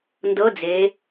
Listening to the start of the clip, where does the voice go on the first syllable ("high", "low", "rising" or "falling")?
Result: rising